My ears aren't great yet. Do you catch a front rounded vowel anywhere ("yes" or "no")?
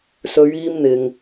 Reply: no